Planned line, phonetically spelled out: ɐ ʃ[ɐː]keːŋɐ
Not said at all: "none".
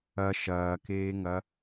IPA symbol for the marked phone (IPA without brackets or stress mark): ɐː